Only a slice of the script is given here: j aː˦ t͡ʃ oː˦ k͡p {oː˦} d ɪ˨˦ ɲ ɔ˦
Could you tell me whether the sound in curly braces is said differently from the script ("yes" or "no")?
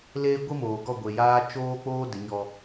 no